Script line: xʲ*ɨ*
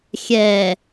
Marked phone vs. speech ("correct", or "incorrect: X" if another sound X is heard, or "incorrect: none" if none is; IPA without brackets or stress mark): incorrect: ɛ